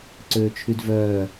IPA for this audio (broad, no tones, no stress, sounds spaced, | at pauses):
ǀ øː t͡ʃʰ y d v œː